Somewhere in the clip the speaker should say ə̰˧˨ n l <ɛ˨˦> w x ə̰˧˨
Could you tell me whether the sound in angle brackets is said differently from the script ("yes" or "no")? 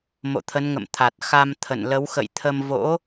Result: yes